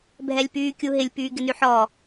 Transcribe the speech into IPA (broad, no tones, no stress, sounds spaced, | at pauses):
bʱ ɛ lʲ p yː kʲ u ɦ ɪ lʲ p yː ɡ ɪ n y ħ ɔ